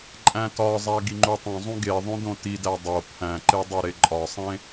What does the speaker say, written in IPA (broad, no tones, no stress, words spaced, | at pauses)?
ǃʼæ̃tɒzˤæ ɡiŋ͡ǃutˤõzˤũ ɡeðˤõ dõtidæ dˤo pʰæ̃ǃe dˤoɾeǃʼɒsˤẽ